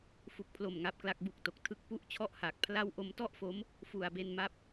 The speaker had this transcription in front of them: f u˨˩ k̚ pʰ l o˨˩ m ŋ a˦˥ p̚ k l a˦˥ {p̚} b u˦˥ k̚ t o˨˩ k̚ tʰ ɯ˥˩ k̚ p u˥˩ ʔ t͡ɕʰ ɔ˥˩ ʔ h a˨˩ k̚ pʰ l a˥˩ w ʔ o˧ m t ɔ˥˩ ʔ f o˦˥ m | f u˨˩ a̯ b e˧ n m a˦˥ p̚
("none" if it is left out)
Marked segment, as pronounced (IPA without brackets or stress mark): k̚